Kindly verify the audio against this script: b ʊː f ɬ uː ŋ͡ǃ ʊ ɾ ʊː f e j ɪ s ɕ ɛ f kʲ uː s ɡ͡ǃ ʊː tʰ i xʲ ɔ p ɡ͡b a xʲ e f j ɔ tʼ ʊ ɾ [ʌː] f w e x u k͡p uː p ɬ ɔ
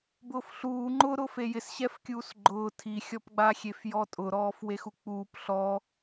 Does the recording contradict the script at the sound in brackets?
yes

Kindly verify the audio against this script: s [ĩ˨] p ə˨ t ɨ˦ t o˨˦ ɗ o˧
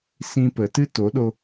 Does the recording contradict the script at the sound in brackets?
yes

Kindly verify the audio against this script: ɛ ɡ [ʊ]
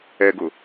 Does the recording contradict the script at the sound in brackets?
no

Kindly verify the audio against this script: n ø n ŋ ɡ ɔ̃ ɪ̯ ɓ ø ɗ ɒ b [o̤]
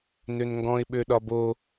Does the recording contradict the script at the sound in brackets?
yes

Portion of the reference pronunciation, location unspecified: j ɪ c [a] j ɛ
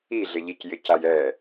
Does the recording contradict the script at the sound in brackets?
no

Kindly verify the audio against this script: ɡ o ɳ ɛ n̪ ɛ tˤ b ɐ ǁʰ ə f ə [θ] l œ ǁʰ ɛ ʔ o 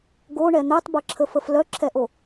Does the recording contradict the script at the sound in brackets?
yes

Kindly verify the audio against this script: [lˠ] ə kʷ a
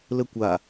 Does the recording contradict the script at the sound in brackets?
yes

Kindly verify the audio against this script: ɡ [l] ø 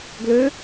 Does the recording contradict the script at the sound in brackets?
no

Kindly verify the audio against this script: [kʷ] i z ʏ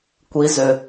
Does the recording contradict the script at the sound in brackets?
no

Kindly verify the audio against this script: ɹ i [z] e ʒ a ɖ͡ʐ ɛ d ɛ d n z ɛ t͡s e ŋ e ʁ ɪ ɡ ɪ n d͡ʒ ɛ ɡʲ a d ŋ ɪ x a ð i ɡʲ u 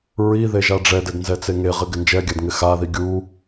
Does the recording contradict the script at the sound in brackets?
yes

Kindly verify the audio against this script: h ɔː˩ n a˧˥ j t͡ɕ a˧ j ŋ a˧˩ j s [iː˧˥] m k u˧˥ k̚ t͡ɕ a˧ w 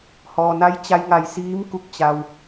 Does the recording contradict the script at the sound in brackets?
no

